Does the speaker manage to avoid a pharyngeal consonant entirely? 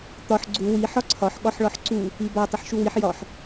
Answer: no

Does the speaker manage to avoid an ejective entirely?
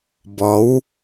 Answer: yes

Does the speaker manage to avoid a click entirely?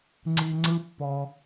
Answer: no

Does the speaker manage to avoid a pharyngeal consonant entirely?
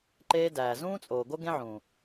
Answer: no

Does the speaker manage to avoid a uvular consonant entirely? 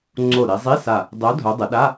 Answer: yes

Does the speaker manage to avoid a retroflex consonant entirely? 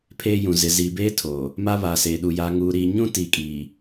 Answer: yes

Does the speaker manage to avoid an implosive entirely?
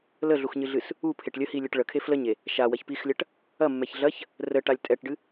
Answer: yes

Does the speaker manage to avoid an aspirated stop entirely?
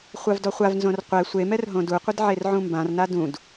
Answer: yes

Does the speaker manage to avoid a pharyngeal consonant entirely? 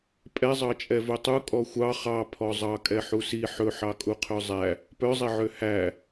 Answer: no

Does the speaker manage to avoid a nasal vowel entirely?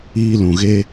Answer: no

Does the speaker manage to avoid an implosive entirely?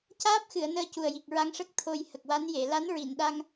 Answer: no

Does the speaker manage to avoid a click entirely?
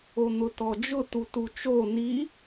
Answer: yes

